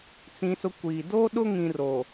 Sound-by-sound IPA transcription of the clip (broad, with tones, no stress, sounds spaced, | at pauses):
t͡s ĩ˦ s ʊ˦ kʷ i˨ d o˦ ɗ ʊ˦ ŋ ĩ˦ r o˨